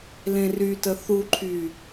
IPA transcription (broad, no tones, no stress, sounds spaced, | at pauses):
l ẽ r y t ə θ u ǃʰ y